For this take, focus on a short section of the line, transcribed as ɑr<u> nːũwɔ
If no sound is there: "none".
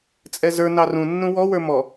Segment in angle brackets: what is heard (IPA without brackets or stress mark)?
ũ